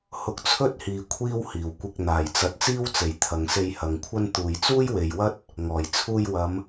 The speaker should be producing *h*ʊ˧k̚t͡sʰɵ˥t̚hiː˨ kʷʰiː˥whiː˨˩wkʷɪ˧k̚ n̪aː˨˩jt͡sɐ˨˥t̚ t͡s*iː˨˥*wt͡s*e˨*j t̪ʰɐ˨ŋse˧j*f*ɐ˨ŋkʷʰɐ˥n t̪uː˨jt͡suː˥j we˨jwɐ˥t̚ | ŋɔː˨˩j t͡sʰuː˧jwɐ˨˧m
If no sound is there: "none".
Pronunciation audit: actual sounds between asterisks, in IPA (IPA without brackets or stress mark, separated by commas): h, iː˥, e˨, h